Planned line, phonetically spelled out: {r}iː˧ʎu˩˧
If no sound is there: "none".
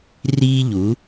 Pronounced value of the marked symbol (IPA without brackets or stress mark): r